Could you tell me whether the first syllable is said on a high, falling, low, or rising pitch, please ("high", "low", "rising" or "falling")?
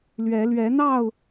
rising